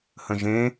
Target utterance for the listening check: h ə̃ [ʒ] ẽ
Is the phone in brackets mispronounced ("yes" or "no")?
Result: no